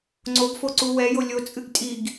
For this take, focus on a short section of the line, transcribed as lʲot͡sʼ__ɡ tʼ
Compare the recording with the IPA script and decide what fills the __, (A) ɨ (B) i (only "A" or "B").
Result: A